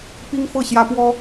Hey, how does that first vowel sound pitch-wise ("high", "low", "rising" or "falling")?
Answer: high